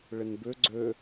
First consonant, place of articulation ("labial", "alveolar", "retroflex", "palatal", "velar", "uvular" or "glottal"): retroflex